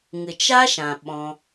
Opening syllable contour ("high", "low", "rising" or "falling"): low